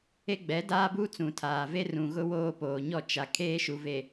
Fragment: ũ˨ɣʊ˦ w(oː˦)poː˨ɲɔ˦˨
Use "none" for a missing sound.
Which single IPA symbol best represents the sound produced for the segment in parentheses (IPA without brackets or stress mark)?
oː˦